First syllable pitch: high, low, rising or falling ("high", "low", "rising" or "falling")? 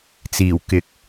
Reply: low